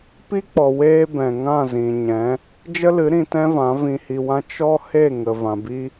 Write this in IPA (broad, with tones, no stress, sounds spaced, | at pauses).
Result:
p i˦ k͡p ɔ˨ w eː˦ b ɛ̃˨ ŋ ã˦˨ z ĩ˨ ɲ ɛ̃˨˦ | d͡ʒ ə˦ l ɨ˨˦ ɾ ĩ˧ t ɛ̃˦ v ã˨˦ v ĩ˧ h i˧ w ã˦ t͡ʃ ɔ˦ h e˦˨ ŋ ə˨ v ã˨ b i˦